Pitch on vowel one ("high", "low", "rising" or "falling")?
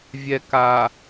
low